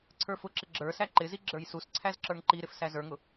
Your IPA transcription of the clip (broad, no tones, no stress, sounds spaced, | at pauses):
ǀʰ ə˞ f ʊ ǁ ɪ ɡ͡ǁ ə˞ s æ ǃ ɪ z i ɡ͡ǁ ə˞ j s u s ǀʰ æ z ǁ ə˞ ŋ ǃ i ɾ ɪ f s æ z ə˞ ŋ ʊ